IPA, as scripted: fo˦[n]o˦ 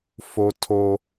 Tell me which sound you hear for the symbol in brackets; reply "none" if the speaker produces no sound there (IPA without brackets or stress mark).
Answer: tʰ